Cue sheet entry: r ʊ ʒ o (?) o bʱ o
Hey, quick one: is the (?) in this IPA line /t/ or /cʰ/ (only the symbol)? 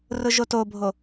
t